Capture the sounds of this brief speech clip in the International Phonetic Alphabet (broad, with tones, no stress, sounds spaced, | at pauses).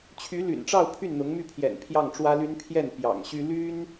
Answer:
t͡ɕʰ y˧˥ l y̰˨˩ n ʈ͡ʂ ɑ˥˧ ʊ̯ pʰ y˥˩ n n̪ ʊ˧˥ ŋ m y˥˩ pʰ j ɛ̰˨˩ n pʰ j ɑ˥˩ ŋ ʈ͡ʂ w ä˥ l y˥ n pʰ j ɛ˥˩ n p j ɑ̰˨˩ ŋ ɕ y˥ l y˥ n